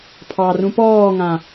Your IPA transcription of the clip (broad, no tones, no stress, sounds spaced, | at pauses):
pʰ ɑ r ũ p ɔː ŋ ã